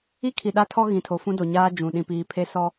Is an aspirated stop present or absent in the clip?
present